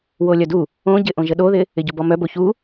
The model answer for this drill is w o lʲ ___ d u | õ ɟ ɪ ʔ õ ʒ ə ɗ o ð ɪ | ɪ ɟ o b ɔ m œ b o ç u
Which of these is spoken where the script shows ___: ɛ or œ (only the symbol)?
œ